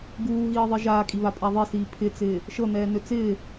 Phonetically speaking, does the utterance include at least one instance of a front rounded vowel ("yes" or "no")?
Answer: yes